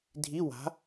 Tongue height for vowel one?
high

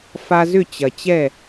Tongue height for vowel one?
low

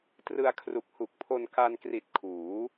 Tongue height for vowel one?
high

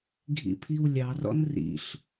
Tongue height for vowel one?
high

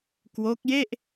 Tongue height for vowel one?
mid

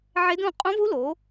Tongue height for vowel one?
mid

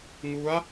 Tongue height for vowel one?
high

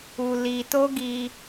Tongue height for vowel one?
high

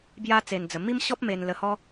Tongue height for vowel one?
low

